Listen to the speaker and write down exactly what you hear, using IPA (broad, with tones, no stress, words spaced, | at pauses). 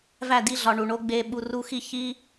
væ˦˨di˧ɮɒ˨ ɳu˨ɳo˦ ɡ͡be˧ɓu˧ ru˦xi˦ çi˦